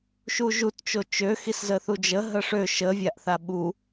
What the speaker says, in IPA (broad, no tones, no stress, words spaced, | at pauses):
ʃuʒut t͡ʃot͡ʃø xiszəθud͡ʒə ɦəʂø ʃə vʲaʔθaɓu